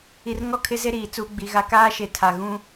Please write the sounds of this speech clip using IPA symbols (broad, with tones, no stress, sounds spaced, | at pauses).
i˨ r ŋ ɔ˦ kʰ ɪ˦ z e˦ ɾ iː˨ t͡s uː˦ ɡ͡b i˨˦ ɣ a˦ k aː˦ ʃ e˨ tʰ a˨ ɣ ũ˦